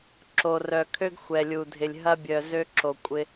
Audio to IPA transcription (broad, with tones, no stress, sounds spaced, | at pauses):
ǁ o˨ r œ˨ kʰ ø˦ ɡ xʷ ɛ˨ lʲ u˨ dʱ ɪ˨ lʲ ɦ ɐ˦ bʲ œ˨ z ø˦ ǁ o˨ kʷʼ ɪ˦